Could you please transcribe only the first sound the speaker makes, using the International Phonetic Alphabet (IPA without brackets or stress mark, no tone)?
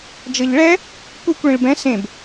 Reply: d͡ʒ